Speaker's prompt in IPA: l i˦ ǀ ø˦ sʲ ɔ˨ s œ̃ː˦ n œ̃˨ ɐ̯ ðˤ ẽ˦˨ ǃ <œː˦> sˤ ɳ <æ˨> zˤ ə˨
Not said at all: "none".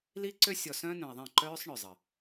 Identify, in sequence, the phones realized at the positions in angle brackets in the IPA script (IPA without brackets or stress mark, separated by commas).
œː˦, œ˨